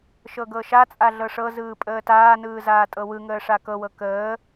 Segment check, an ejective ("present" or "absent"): present